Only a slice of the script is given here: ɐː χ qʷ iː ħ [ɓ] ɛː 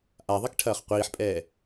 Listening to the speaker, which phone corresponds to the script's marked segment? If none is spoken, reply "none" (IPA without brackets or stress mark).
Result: pʼ